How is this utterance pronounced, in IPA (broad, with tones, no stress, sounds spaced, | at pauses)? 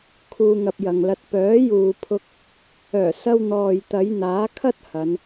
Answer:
kʰ uː˧ ŋ ɐ˧ p̚ j ɐ˨ ŋ l ɐ˧ t̚ p œː˨˥ j uː˨ pʰ ʊ˧ k̚ | œː˨˩ s ɐ˧ w n̪ ɔː˨ j t̪ ɐ˨˧ j n̪ aː˨˥ kʰ ɐ˥ t̚ h ɐ˨˧ n